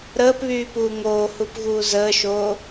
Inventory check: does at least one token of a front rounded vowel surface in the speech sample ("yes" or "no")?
yes